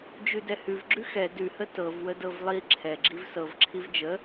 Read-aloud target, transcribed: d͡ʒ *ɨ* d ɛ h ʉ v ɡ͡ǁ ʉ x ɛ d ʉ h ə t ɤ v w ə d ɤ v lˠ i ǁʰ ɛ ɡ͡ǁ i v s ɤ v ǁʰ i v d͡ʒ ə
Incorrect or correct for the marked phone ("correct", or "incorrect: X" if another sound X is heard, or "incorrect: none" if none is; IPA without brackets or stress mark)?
incorrect: ʉ